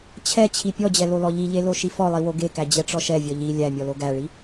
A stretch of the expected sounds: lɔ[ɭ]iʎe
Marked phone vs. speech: incorrect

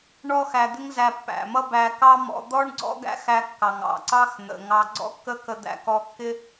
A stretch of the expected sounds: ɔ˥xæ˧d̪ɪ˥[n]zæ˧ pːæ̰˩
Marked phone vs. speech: incorrect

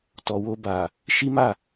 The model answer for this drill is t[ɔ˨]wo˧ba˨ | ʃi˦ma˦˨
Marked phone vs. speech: correct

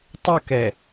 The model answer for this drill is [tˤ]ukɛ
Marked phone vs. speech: correct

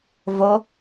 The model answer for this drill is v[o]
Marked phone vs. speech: correct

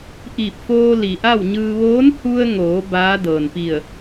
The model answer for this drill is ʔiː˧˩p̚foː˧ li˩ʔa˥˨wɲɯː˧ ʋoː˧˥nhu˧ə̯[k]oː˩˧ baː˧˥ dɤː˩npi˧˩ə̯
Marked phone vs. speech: incorrect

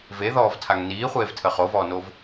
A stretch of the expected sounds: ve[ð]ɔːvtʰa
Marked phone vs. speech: correct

